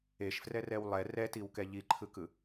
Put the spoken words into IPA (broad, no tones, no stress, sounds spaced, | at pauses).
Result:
e ʃ f r ɛ r ɛ w lˠ ɛ r ɛ t i w k ɛ ʎ i ǃʰ ɯ k ɯ